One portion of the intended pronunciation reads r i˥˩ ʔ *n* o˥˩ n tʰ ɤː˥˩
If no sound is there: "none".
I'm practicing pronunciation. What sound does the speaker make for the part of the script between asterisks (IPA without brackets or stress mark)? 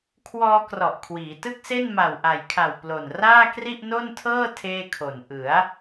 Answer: n